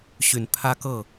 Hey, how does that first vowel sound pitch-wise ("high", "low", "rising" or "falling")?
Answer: low